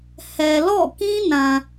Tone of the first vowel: low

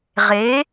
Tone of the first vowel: rising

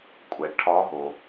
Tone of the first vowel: low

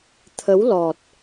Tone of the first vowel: rising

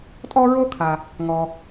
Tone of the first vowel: high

